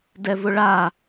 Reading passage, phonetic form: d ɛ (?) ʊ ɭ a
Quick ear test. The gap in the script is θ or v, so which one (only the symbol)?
v